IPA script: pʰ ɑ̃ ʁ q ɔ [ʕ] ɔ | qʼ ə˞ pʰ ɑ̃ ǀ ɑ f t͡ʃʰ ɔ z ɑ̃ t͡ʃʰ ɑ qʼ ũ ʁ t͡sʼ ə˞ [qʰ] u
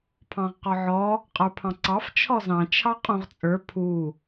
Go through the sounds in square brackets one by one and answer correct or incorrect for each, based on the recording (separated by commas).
correct, incorrect